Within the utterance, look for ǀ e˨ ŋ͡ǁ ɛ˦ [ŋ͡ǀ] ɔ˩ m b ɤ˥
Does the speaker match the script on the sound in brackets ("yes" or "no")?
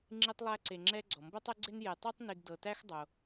no